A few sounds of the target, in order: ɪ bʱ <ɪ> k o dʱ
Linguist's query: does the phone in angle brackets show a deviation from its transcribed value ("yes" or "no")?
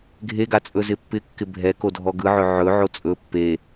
yes